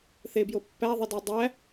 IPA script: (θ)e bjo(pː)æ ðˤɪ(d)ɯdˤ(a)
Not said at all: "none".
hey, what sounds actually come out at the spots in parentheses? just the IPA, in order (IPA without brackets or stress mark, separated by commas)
θ, pː, d, æ